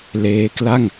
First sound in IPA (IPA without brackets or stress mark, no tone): l